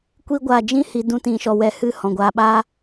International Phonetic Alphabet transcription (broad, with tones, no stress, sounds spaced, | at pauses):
kʷ i˦ ɡʷ aː˧ d͡ʒ ĩ˦ h i˧ d ũ˦ t ĩ˧ ʃ ɔ˧ w ɛ˧ h ɨ˦˨ h ɔ̃˨ ɡʷ aː˧ ɓ aː˦